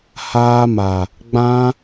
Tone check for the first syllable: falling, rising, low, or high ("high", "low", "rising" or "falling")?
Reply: high